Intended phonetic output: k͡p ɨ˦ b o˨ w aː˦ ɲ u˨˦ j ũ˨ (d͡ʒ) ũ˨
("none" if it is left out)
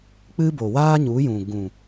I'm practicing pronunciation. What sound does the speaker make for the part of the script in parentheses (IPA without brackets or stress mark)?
ɡ